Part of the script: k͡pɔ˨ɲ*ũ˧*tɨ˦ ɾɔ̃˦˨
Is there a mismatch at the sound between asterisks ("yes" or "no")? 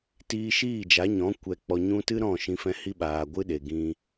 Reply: no